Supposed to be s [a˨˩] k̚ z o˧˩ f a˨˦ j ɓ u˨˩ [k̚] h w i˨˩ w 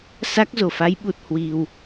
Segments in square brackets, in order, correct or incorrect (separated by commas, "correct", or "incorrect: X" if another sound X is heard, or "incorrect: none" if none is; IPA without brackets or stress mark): incorrect: a˦˥, incorrect: t̚